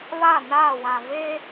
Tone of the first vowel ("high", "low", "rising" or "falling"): falling